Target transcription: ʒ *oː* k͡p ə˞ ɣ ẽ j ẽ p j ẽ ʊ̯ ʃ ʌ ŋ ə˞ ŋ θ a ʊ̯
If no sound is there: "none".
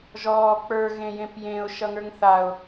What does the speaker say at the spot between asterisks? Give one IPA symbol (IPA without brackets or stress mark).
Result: ɔː